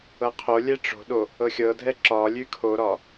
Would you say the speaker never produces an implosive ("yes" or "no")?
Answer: no